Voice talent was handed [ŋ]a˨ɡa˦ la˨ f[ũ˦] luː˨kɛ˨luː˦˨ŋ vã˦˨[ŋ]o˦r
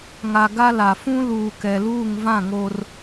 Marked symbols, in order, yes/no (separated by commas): yes, yes, yes